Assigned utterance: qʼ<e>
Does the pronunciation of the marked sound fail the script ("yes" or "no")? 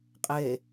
no